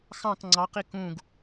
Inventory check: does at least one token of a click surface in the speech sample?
yes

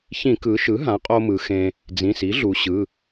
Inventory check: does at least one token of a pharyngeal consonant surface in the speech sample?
no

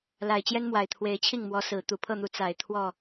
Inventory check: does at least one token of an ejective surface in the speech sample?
no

